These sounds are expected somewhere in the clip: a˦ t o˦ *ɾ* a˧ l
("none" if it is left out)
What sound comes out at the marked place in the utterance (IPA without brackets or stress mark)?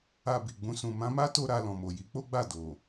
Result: ɾ